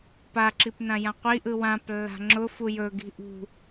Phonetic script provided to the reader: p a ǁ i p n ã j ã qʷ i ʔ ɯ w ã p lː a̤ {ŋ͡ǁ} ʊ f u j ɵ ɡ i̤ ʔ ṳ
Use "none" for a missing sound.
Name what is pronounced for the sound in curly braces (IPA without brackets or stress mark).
ŋ͡ǁ